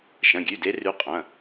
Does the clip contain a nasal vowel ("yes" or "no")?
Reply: yes